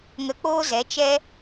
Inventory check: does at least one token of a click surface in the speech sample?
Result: no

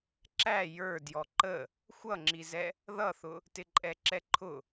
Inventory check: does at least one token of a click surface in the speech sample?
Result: yes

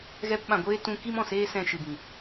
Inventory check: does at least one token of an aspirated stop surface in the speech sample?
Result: no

